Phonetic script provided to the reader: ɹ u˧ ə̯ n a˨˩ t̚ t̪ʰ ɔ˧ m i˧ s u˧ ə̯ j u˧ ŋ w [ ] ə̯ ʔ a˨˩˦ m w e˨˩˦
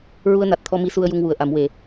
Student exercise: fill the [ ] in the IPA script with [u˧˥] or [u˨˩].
u˨˩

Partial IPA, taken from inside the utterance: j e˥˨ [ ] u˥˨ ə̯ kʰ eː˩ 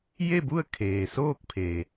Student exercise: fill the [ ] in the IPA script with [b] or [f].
b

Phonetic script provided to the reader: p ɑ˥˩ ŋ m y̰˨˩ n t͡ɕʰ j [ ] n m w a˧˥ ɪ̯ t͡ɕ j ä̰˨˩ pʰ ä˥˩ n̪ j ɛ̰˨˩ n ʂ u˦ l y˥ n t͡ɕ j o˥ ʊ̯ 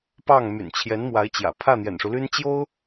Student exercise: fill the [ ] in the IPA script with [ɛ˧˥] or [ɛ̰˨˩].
ɛ˧˥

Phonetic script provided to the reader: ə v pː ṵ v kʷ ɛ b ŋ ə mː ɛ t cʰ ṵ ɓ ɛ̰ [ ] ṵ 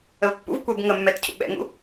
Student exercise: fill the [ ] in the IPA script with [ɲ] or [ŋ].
ŋ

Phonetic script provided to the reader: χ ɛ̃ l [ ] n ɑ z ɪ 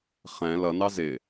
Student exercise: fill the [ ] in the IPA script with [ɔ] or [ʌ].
ʌ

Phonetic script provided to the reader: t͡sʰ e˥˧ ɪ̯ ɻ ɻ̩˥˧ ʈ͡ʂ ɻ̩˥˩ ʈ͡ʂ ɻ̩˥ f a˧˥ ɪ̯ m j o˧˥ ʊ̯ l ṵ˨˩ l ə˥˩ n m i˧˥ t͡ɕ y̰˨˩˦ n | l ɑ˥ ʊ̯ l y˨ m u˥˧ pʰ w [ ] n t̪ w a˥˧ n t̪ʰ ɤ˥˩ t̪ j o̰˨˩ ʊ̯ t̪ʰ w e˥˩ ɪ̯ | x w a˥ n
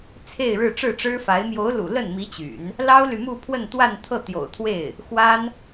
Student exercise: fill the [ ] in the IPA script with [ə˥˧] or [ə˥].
ə˥˧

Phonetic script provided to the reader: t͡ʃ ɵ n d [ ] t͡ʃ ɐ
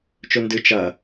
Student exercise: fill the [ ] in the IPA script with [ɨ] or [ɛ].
ɨ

